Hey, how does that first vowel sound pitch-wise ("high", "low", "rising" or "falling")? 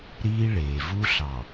high